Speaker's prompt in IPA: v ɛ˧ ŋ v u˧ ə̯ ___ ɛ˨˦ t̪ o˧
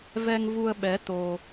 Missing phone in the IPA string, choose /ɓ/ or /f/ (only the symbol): ɓ